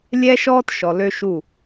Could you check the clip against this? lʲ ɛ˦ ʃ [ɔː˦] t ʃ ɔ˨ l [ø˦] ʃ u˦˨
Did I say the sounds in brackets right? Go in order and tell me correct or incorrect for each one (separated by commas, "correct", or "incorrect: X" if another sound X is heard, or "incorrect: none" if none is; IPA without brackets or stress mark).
correct, correct